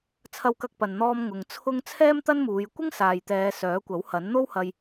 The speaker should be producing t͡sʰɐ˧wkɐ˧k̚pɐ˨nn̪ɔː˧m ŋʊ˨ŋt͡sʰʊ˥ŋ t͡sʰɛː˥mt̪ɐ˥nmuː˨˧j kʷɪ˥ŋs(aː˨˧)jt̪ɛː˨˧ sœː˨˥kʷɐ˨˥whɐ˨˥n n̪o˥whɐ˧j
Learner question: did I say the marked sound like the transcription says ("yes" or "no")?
no